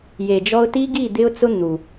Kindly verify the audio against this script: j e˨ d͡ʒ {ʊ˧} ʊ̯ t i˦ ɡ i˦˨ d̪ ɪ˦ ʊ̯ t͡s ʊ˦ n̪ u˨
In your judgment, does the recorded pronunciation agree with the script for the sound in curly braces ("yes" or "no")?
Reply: no